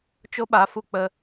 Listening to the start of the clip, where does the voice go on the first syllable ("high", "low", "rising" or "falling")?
high